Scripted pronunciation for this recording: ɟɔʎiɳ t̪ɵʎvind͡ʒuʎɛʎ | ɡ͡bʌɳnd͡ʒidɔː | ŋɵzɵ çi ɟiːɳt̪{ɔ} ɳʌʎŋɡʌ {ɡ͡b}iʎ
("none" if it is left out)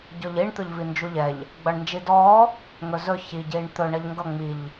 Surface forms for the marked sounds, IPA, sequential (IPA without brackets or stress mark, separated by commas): ɵ, ŋ͡m